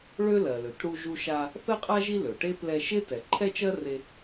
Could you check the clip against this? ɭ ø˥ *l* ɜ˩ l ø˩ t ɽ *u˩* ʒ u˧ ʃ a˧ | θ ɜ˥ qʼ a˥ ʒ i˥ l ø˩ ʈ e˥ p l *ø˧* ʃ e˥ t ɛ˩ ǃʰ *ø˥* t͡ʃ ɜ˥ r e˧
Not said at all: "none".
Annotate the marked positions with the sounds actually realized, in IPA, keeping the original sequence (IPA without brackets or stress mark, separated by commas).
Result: l, u˧, ɛ˧, ɛ˥